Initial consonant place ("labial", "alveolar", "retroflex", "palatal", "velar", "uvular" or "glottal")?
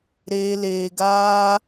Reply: alveolar